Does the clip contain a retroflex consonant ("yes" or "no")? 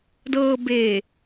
no